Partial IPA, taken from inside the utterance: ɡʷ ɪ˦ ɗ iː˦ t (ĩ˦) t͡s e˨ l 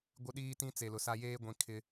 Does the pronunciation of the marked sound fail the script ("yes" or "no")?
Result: no